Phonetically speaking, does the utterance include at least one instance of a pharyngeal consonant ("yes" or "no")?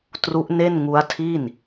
no